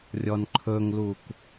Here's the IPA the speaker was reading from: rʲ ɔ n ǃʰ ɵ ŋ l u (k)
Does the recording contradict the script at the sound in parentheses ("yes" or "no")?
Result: no